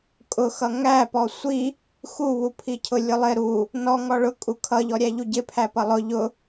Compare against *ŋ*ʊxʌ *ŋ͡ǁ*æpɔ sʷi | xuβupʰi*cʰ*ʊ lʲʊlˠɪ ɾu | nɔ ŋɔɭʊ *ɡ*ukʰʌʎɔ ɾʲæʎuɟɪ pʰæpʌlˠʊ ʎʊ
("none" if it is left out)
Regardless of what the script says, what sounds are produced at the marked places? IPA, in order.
kʼ, ŋ, cʰ, kʼ

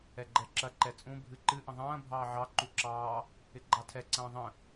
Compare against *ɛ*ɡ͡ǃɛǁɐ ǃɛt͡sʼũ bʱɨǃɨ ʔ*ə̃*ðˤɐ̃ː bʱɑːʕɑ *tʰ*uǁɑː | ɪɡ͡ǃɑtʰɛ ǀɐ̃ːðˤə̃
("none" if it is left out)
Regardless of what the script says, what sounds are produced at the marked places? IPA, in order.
ɛ, ə̃, ǃ

